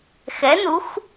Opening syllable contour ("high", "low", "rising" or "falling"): rising